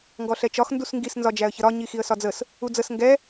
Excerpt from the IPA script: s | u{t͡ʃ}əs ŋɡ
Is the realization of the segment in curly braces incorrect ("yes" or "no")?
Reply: yes